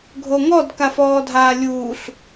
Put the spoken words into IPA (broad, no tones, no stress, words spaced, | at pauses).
ɡʱoŋɔd kafɔːdʱaːlʲuːɬ